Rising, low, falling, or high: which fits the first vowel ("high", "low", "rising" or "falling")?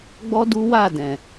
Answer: high